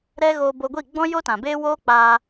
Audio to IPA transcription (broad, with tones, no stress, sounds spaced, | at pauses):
ɾ ɛ˦ ɣ oː˧ b o˧ ɡʷ i˦˨ ɡ͡b ɔ̃˦ j o˦ t ã˨ b eː˦ w oː˦ k͡p aː˧